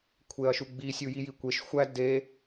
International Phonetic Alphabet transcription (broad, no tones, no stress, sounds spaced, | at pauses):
kʷʰ e ɐ̯ ʃ u ɡ͡b i sʲ u j i j i kʷ e ʃ xʷ æ d e